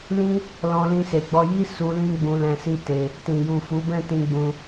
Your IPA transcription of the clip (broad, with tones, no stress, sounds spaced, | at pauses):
l ĩ˦ | l ɔ̃˧ l ĩ˧ s e˨ ɡ͡b ɔ˧ j i˦ s u˧ l ĩ˦ ɡ͡b ũ˧ l ɛ̃˧ s i˦ t e˧ | t ĩ˨ j u˨ f u˨˦ b ɛ̃˦˨ t ĩ˧ ɡ͡b ũ˧